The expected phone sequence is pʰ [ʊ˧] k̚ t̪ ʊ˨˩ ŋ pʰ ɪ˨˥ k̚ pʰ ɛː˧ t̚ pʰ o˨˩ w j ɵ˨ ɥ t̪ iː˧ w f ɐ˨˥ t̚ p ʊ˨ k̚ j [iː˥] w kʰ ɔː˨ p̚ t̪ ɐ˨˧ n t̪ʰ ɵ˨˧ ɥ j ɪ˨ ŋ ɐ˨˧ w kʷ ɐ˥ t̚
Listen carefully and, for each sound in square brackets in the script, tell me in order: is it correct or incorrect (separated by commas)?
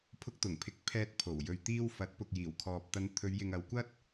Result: correct, incorrect